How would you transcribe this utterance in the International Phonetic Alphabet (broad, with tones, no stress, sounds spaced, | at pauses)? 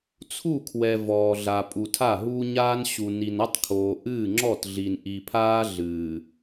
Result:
t͡sʰ u˦˨ kʰ w ɛ˨ v ɔː˨ ɮ a˨ pʼ u˨ tʰ a˦˨ ɦ uː˦ ɲ aː˦ n ɕ u˨ n i˨ n ɐ˦ tˤ kʰ oː˨ ʔ ɨː˦˨ ŋ͡ǁ ɔ˦˨ t ɮ i˨ n ʔ i˨ pʰ aː˦ ɮ ɨː˨